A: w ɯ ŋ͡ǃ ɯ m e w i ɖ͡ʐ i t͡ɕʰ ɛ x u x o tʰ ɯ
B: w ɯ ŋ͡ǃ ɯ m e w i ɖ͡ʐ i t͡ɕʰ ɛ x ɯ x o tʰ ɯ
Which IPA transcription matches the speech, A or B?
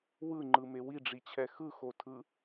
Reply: B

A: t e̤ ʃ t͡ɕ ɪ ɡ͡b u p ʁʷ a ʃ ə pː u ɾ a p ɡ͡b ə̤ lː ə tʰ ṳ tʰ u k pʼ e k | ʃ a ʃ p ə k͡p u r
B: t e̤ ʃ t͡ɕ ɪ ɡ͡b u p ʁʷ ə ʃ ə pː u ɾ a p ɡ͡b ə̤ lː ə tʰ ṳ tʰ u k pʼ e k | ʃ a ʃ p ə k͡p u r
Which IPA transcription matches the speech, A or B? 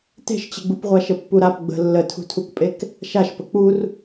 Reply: A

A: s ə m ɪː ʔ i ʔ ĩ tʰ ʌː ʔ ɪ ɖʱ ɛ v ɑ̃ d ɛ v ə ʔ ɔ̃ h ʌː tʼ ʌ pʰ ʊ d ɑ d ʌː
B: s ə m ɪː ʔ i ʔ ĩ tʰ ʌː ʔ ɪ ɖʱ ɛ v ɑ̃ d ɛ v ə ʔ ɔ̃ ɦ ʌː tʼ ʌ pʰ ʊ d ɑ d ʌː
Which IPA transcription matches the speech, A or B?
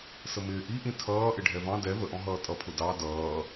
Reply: B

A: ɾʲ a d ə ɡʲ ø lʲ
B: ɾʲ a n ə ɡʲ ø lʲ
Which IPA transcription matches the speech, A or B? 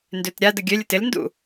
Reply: A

